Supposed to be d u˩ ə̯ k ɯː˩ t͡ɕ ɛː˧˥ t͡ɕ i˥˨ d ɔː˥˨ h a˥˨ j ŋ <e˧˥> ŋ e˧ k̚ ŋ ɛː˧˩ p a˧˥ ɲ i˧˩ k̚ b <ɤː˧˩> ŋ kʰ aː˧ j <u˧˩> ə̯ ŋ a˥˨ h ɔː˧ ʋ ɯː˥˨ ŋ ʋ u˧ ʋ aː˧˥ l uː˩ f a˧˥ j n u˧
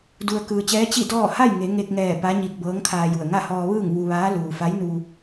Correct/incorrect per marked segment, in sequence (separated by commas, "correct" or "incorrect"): incorrect, incorrect, correct